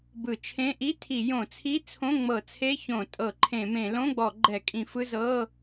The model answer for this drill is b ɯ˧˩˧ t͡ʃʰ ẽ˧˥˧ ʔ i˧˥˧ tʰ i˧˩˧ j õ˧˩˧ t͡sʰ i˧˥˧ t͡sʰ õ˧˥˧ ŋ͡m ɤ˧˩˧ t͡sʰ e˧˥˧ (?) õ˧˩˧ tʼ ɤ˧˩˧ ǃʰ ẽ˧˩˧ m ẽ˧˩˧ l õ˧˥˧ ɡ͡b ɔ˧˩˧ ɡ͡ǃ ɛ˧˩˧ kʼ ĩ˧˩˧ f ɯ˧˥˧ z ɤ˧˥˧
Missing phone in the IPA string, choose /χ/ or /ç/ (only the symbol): ç